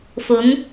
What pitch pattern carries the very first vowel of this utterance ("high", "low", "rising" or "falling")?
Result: rising